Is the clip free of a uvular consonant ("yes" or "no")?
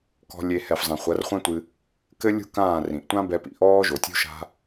no